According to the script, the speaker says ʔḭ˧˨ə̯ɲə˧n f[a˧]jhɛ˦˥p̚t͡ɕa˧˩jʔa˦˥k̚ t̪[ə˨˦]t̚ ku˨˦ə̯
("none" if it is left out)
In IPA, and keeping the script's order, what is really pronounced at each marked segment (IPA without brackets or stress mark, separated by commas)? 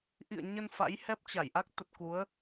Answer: a̰˧˥, ə˨˩